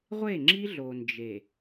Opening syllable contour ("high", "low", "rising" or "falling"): falling